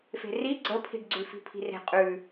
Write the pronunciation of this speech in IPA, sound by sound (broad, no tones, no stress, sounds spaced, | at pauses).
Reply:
f e̤ r i ɡ͡ǀ ə pʰ i̤ ɖ ɡ͡ǀ ʉ f i̤ pʰ i̤ r e̤ qʼ ʉ